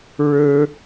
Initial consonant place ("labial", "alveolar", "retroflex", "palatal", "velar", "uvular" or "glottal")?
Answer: retroflex